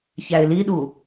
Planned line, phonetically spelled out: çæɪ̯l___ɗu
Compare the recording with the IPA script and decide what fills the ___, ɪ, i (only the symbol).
i